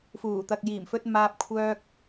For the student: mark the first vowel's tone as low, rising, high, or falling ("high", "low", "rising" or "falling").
low